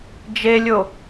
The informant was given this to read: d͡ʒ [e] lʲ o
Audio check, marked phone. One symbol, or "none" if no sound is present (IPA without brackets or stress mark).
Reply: e